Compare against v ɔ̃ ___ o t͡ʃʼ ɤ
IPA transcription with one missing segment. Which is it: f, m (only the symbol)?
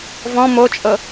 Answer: m